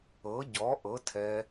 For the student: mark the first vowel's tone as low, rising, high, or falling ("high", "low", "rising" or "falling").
rising